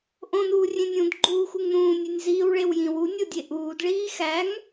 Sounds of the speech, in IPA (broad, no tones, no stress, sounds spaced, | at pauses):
ʔ õ n uː rʲ ẽ nʲ ũ d ɡ͡ǃ uː x u ŋ n ũː nʲ e nʲ z iː w ɭ e w j ĩ w u nʲ o dʲ e ʔ uː d ɭ iː x æ ŋ